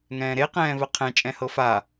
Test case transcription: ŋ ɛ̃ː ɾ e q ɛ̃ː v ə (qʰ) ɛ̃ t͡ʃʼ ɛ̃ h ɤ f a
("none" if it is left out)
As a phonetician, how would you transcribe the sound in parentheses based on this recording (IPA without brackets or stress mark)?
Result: qʰ